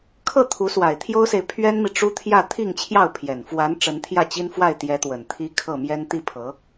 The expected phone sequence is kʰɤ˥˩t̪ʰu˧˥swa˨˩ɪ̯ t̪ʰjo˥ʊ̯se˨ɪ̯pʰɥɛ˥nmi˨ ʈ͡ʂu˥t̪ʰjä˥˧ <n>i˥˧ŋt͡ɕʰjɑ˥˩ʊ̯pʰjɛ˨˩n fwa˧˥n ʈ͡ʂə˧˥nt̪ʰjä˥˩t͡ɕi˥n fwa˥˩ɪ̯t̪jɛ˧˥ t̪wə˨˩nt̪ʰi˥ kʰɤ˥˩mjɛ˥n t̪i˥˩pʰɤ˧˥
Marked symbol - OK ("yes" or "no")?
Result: no